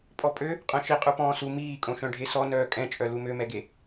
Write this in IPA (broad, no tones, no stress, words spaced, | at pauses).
pʼɔpʼø | qʼœ̃ʃi qʼupɔ̃ːsu miːkʼõ ʃœ̃ɖʱesɔ nœːkʼɛ̃t͡ʃʼœ lumømɛɡe